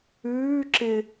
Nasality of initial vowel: oral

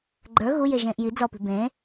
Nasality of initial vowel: oral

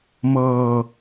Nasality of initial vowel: oral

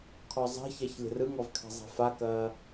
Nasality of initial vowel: oral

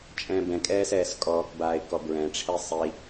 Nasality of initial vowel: nasal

